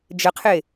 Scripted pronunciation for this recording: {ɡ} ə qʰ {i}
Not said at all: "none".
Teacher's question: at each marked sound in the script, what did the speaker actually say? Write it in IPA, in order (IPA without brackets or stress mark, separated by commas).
d͡ʒ, e